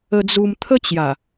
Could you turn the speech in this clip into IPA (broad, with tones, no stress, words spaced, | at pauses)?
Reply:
ə˧d͡zu˧m t̪ʰə˦t͡ɕja˨˩